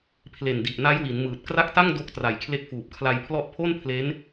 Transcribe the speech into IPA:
pʰ l e˨˩ n d i˨˩ ʔ n a˦˥ j w i˩˦ n m ɯː˨˩ t̚ k r a˦˥ k̚ t a˥˩ ŋ d o˦˥ k̚ t r a˨˩ j kʰ l e˦˥ k̚ f uː˨˩ p̚ kʰ l a˧ j pʰ l ɔ˦˥ ʔ pʰ o˥˩ n pʰ l e˦˥ n

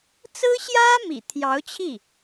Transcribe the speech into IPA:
t͡s ɹ̩˥ ɕ j ä˥ m ḭ˨˩ t̪ʰ j ɑ˧˥ ʊ̯ t͡ɕʰ i˥˩

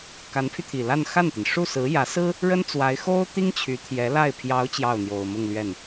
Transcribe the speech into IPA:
k a˧˥ n pʰ y˧ t̪ʰ i˨˩ l a˥˧ n x a˥˩ n t̪ i˩ n ʂ u˥˩ s ɹ̩˧˥ j ä˧˥ s ɹ̩˥ | ɻ ə˥ n t͡s w a˧˥ ɪ̯ x o˥ ʊ̯ t̪ i˥ ŋ t͡ɕʰ y˧˥ t̪ʰ j ɛ˧˥ l a˥˩ ɪ̯ pʰ j ɑ˧˥ ʊ̯ t͡ɕ j ɑ˥˩ ʊ̯ n̪ j o˨˩ ʊ̯ m ʊ˥˧ ŋ l ɥ ɛ˥˩ n

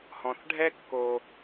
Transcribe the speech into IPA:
h ɔ̃˨ θ ɖʱ ɛ˦ kː o˦

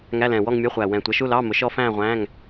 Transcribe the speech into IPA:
ŋ æ˧˥˧ l ɛ̃ː˨˩ w ɔ˥˧ ŋ mʲ ɔ˧˥˧ χʷ æ˨˩ w ɛ̃˨˩ tʷ ʌ˩˥ ʃ u˧˥˧ l ɑː˧˥˧ m ʊ˩˥ ʃ ɔ˦˥ f æ̃ː˥˧ ʁʷ æ̃ː˧˥˧ ŋ

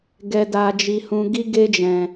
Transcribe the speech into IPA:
ɡ ɛ˦ d a˦ d͡ʒ i˦ h ũ˦ ɡ i˦ ɡ e˦ d͡ʒ ɛ̃˧

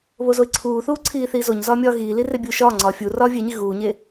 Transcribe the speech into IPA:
β o z o ɪ̯ ǀʰ uː θ uː ǀʰ iː θ iː z o ɲ z ɒː mʲ ɒː ɣ iː l i r e bʲ uː ʃ ɒː ŋ͡ǀ ɒː fʲ u r ɒː vʲ e ɲ i ɣ uː ɲ e

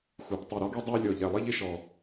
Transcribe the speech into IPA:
x u˨˩ p tˤ i˨˩ ɾ ɔ˦ ɡ i˦ dˤ i˦ ʊ̯ lʲ ɔ˨˩ ʎ ɛ˨˩ lˠ i˦ ʎ ɪ˦ ʃ ɔ˨˩

